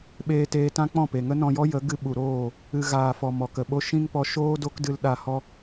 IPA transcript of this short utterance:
ɓ eː˧ t eː˧ t ã˦ k͡p ɔ̃˦˨ p e˨ ŋ ə˦ n ɔ̃˧ j ɔ˦ j ə˨˦ ɡ ɨ˧ ɓ u˨ ɾ oː˦˨ | ɨ˧ ɣ aː˨ f ɔ˨ m ɔ˨ k ə˨ ɓ o˦ ʃ ĩ˦ ŋ p ɔ˧ ʃ oː˦ d o˦ k d ɨ˧ l ɗ a˧ h ɔ˦

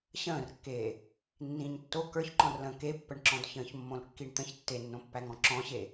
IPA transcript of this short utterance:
ɕ ə̃ː r kː eː | nː ĩː ɲ tː o k ə˞ ç ǃ ɔ̃ r l ə̃ː k e pː ə ɳ ǁ ɔ̃ d ç ə̃ː ç mː õ l kː i ɳ t̪ ə̃ ç tː e nː õ pː æ ŋ ɔ̃ ǁ ɔ̃ ɕ e

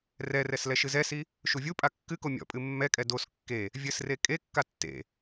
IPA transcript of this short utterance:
r ɛ r ɛ s l ɛ ʃ ɨ z ɛ s i | ʃ u vʲ u pʼ a kː ɨ k o mʲ ɔ̰ pʼ ɨ mː ɛ kʼ ɛ d o s kː e | vʲ ɘ s r e kʼ e kː a tː ḛ

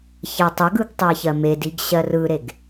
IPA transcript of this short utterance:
ç ɜ tˤ ə ɡ ɯ ɡ tˤ ɜ ç ɜ m e d i ɡ ɕ ɜ r ɯ ɾ e ɡ

